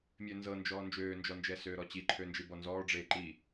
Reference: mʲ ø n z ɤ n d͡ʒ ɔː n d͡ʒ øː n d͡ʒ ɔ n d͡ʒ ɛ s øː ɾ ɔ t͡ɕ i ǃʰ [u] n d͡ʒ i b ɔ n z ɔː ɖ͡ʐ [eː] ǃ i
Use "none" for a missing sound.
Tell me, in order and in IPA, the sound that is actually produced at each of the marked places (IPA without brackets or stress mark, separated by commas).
ø, eː